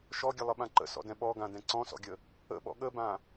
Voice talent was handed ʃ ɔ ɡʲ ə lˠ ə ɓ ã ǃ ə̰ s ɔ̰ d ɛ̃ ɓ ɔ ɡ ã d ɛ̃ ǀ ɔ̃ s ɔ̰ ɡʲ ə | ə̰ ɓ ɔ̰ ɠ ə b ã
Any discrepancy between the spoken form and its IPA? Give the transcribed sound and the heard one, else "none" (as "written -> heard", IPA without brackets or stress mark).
none